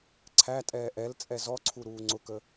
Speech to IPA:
ǀʰ æ tʼ ɛː ʔ ɛ l t͡sʼ ɛ z ɔ ǀʰ u ɾ uː ŋ͡ǀ ʊ k ə

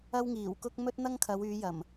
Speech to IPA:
ɐ˥ w ŋ iː˨˩ w k ʊ˥ k̚ m ɵ˥ t̚ n̪ ɐ˥ ŋ kʰ ɐ˨˧ w yː˨˧ j ɐ˨˩ m

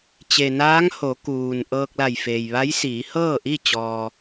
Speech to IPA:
t͡ɕ e˩ n aː˧˥ ŋ h o˩˧ k uː˩ n ʔ ɤː˧ k̚ l a˧˩ j f eː˩ j ʋ a˧˥ j s iː˩˧ h ɤː˥˨ ʔ i˥˨ t͡ɕ ɔː˧

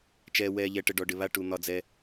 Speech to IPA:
t͡ʃ ɛː˨ w ɛː˨ ʎ ɛ˨ ʈ ə˨ ɖ ɔ˨ ɖ ɪ˨ β a˦ ʈ u˨ n̪ ɒ˦ d͡z ɛ˦

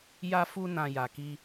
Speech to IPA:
j a˧ f u˧ n ã˨ j a˨ k i˧

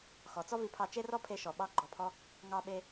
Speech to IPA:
x ɔ˩ t͡s ɔ˥ v i˧ pʰ ɑ˧ t͡ʃ e˥ r ɔ˥ pʰ e˧ ʃ ɔ˩ ɓ ɑ˧ ɡ͡ǃ ɔ˩ pʰ ɔ˧ | ŋ ɑ˧ ɓ e˧

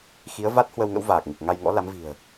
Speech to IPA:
x i˨˦ ə̯ v a˦˥ t̚ h w ə˧ w ŋ ə̰˧˥ w v aː˨˩ k̚ ŋ ɨ˨˩ k̚ ŋ a˧ j ŋ ɔ̰˧˥ l a˨˦ m v i̤˨˩ ə̯

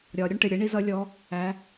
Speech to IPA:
ɾʲ ɒ˩˧ ɾʲ ʊ˥ ɳ ʈ ɪ˩˧˩ ɾʲ ə˧˥ ɳ i˧˥˧ z ʌ˧˥ lʲ ɔ˧˥ | æ˧˥

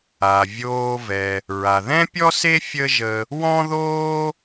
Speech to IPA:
a˩ vʲ oː˧ v ɛ˩ | ɹ a˩ ð ɛ̃˥ pʲ ɔ˥ s e˥ fʲ ə˥ ʒ ə˧ | w ɔ̃˥ ð oː˥

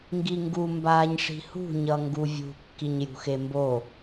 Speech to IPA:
ŋ ɡ i ŋ ɡ u m b aː ɲ ʂ i̤ h ṳ ɲ ʌ ŋ ɡ u vʲ ṳ kː i ɲ j ṳ x e m b o

